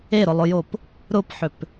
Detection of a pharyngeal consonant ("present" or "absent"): present